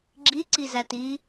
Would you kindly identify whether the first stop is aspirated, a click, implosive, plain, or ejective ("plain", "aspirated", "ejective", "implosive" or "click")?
click